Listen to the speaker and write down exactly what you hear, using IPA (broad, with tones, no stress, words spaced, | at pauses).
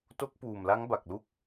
to˦˥k̚puː˨˩m la˦˥ŋba˨˩k̚lu˦˥k̚